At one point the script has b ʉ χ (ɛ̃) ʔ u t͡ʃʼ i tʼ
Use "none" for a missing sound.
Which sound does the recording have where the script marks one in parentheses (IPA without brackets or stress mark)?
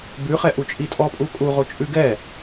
ɛ